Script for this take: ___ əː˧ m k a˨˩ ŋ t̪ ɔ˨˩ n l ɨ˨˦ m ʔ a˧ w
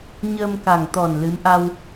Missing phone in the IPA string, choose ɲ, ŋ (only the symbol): ɲ